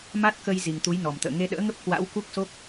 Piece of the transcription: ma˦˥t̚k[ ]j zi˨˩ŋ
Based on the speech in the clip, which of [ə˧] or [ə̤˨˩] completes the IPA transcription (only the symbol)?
ə˧